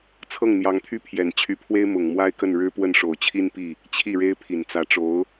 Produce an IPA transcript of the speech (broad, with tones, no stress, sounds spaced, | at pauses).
t͡sʰ ɤ˥˩ ŋ n̪ j ɑ˧˥ ŋ t̪ʰ y˥ pʰ j ɛ˨˩ n t͡ɕʰ y˧˥ pʰ w e˥ ɪ̯ m ʊ˨˩ ŋ m w a˥ ɪ̯ k ə˥˩ n ɻ ɻ̩˥ p w ə˥˩ n ʂ o˨˩ ʊ̯ t͡ɕʰ i˥ n p i˥˩ | t͡ɕʰ i˥˩ ɻ e˥ ɪ̯ pʰ i˨˩ n t͡s ä˧˥ ʈ͡ʂ o˧˥ ʊ̯